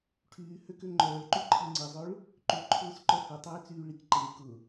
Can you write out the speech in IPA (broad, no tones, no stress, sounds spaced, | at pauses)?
ʈʰ yː h ø k ø ŋ͡ǃ œː ɭ ǃ y ǃʰ i ŋ͡ǀ i zˤ ø ɭ | ǃ y ǃʰ ʊː s ǃ œ h ʊ tˤ eː t͡s yː ɭ i k ǃ eː k ʊ